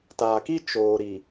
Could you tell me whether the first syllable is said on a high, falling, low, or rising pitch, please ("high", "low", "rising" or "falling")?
low